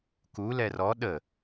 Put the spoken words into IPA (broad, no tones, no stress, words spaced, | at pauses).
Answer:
ku lɛrɔ ɗə